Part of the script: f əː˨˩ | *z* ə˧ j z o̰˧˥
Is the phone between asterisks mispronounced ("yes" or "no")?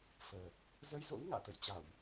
no